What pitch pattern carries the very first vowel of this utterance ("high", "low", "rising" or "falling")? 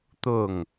falling